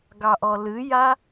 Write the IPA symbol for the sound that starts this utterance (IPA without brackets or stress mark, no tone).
ɡ